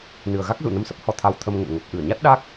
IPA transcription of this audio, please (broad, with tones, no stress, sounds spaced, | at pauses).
n ɨ˨˩ ə̯ ɣ a˦˥ k̚ z ṵ˧˨ n ə˧ m s ə˦˥ p̚ h ɔ˨˦ t̪ʰ a˧ w t̪ʰ ə˧ m ŋ ə̰˧˨ m ŋ ə˨˩ p̚ ʔ ɨ˧˩ ə̯ ɲ a˦˥ t̚ ɗ a˦˥ k̚